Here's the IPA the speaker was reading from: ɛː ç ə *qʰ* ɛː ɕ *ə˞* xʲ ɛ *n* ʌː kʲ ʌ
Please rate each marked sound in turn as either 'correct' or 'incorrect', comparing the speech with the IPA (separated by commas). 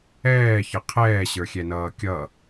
correct, correct, correct